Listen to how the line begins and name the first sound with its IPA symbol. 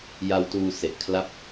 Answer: j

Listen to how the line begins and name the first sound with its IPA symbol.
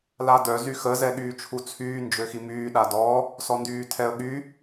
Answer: l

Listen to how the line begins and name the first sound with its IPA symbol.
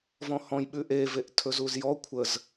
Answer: v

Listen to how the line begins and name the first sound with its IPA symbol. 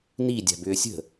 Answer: n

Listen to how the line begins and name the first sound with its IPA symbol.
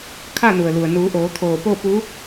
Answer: kʰ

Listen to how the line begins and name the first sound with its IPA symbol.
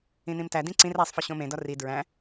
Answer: ĩ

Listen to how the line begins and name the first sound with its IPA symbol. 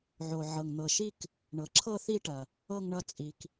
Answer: ʕ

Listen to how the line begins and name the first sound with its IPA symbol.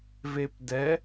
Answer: v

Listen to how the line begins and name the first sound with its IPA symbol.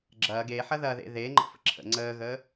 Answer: ɡ͡ǁ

